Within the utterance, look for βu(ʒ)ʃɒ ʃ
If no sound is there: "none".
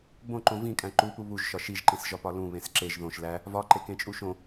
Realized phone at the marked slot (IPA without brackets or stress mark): ʒ